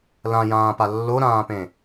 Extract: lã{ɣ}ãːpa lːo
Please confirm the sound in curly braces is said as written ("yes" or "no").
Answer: no